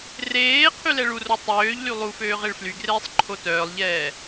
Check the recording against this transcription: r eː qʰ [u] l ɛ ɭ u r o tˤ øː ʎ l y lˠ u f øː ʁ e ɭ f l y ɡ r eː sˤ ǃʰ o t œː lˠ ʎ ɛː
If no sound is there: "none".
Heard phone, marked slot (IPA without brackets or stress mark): y